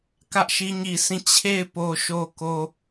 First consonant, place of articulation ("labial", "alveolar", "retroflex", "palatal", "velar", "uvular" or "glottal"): velar